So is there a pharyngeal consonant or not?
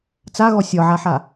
yes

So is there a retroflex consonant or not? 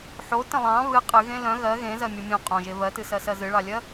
yes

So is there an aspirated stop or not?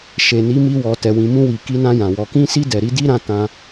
no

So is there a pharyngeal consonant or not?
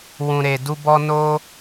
no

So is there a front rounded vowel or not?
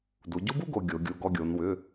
yes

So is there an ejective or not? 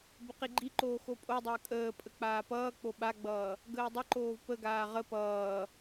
yes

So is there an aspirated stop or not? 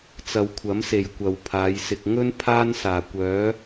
yes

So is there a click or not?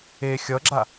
yes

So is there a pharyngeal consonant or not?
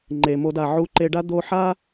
yes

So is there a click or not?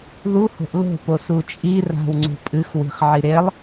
yes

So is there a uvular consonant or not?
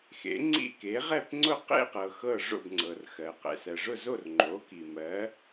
yes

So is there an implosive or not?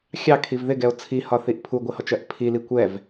no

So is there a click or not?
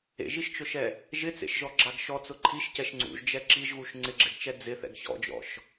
yes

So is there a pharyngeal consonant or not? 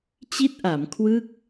no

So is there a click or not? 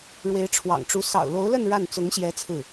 no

